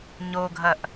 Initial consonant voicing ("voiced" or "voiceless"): voiced